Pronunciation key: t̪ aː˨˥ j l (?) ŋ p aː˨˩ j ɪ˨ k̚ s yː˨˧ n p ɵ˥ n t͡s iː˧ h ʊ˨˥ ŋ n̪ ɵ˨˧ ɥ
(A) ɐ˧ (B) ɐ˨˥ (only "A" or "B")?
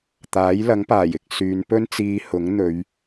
B